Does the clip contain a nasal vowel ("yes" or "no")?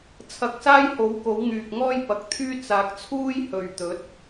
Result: no